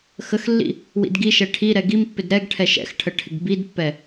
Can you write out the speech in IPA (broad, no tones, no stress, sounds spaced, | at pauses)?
x ə x lː ḭ | w ḭ d ɡ i ʃ ɛ ʈʰ i ɾ ɛ ɡ i m pː ɪ d ɾ ɛ ɡ ʈʰ ɛ ʃ ɛ̰ x ʈʰ ə ʈʰ ɪ ɡ b i d pː ɛ